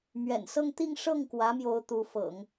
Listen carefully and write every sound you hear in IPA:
m ɥ ɛ̰˨˩ n s ɤ˥˧ ŋ t̪ i˥˧ ŋ ʂ ɤ˥˩ ŋ k w ä˧˥ m j o˧˥ ʊ̯ t̪ u˧˥ f ɤ̰˨˩˦ ŋ

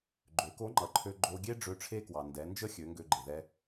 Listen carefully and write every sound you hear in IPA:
ɡ͡ǃ ø˩˧ k o˧˥ ŋ͡ǃ ʌ˩˧ ǃʰ ø˧ ɡ͡ǃ o˧ ɡʲ e˥ ɖ͡ʐ ø˧˥ ʈ͡ʂʰ e˥ k w ɑ˩ n d ɛ˩˧ n d͡ʒ ə˥ xʲ ø˩˧ ŋ ɡ ø˧ ɡ͡ǃ e˩ ð ɛ˧

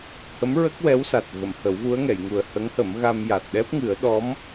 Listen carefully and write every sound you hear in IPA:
h ə˧˥ m ɹ ə˦˥ k̚ w ɛ˧˥ w s a˨˩ t̚ ɣ ə˨˩˨ m h ə˨˩˦ w v u˧˥ ə̯ ŋ ɛ˨˩˨ j ŋ u˨˩ ə̯ h ə˧˥ ŋ h ə˨˩˦ m ɣ a˧ m j a˨˩ t̚ ɗ ɛ˦˥ p̚ ŋ ɨ˨˩˦ ə̯ ɗ ɔ˧˥ m

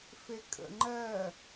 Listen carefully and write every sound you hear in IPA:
f e kʼ ə̰ ŋ͡ǃ ɜ

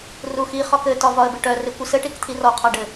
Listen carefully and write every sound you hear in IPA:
r u x i χ ɒ k ɘ t ɒ v ɒ ə̯ b ɪ ʈ œ r ɪ kʷ ɪ s ɘ ʈ i k t̪ʰ i r ɔ qʰ ɒ ɖ ɘ

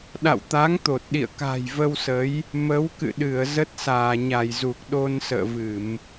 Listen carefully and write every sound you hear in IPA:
ɗ a̰˧˨ w t̪ a˨˦ ŋ t̪ o˨˩ t̚ ɗ ḭ˧˨ ə̯ k a̤˨˩ j v ə˧ w s ə˨˦ j | m ə˨˦ w k ɨ̰˧˨ ɗ ɨ˧˩ ə̯ z ə˦˥ t̚ s aː˧˩ ɲ a˧˩ j z u˨˩ k̚ ɗ o˧ n s ə̰ː˧˨ v ɨ˧˩˨ m

